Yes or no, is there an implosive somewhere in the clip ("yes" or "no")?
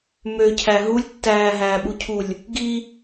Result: yes